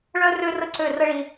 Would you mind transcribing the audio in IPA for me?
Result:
ɭ œ˦ r ø˦ r ə˦ ǀ ø˦˨ r ə˦ ɭ i˦

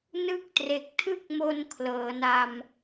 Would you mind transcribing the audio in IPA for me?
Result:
n ɯ˦˥ k̚ t r e˨˩ k̚ tʰ ɯ˥˩ k̚ m o˧ n kʰ l ɤː˩˦ n a˧ m

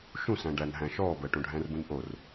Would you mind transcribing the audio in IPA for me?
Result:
ʃ ũ s æ̃ ɖ æ n ɦ æ̃ ʃ ɔː b əː ʈ õ ɖʱ æ̃ r b ũ n ʔ o r

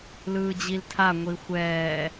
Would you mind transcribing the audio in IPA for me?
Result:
l ɯː d͡ʑ i l tʰ a ŋʷ i xʷ ɛː

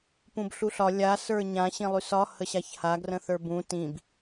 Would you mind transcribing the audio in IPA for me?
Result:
p ũ b ɬ u ɬ ɒ lʲ a s ə˞ ɲ ã ɕ ĩ lˠ y s ɒ h ə ɕ a ç h a ɡ r ə̃ θ ə˞ b ũ t ĩ b

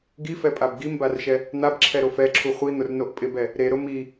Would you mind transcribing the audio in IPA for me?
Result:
ɡ i f ɛ pʼ a b ɡ i m b a r ʃ ɛ | n̪ a b ǁʰ ɛ ɾ o f ɛ ǁʰ u χʷ i n̪ ʊ r n o ʔ pʼ ɪ b ɛ | ɾ e ɾ ʊ m i

